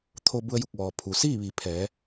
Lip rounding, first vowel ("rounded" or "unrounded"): rounded